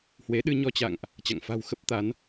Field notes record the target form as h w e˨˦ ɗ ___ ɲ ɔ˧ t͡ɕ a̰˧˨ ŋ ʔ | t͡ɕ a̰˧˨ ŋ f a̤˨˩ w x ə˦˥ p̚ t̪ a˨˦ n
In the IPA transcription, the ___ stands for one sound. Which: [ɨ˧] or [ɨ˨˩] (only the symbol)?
ɨ˧